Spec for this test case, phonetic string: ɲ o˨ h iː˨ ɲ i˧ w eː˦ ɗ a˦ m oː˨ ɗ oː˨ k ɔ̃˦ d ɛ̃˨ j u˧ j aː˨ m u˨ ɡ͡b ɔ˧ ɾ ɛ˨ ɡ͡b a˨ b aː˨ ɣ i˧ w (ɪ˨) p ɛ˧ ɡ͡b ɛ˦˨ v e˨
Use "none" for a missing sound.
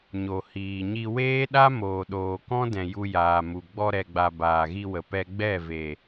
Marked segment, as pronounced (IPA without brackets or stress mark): ə˨